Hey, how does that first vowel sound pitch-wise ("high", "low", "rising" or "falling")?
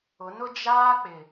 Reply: rising